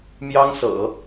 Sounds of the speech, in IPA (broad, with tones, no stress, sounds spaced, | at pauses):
m j ɑ˥ ŋ s ɤ̰˨˩˦